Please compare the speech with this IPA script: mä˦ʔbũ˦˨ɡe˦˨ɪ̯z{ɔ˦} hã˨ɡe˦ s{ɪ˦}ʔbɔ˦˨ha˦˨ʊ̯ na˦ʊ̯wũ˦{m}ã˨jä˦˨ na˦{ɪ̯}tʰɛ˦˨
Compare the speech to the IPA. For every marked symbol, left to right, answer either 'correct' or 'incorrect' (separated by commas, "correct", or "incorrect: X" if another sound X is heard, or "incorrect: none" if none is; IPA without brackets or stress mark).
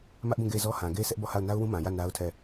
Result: correct, incorrect: ɛ˦, correct, incorrect: ʊ̯